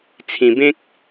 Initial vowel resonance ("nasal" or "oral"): nasal